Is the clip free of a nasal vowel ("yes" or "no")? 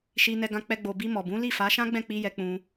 no